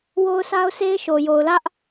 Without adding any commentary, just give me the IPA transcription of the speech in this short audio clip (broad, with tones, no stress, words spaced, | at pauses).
wo˦ʊ̯sʰa˦ʊ̯se˦ɪ̯ʃo˨ jo˨ʊ̯lä˦ʔ